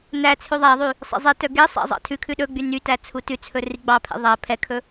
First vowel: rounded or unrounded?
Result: unrounded